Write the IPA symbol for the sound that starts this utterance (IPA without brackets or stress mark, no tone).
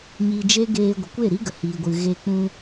ɲ